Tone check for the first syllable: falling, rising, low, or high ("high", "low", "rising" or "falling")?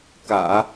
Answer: low